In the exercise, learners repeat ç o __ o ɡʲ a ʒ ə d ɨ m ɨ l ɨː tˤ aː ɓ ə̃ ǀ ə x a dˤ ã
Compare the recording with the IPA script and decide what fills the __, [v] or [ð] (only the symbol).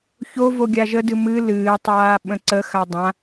v